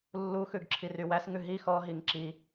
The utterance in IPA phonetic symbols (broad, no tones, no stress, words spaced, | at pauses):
lːuxʉɡ ǁʰirywæsŋʉ ɦi xɔɦiŋ ǁi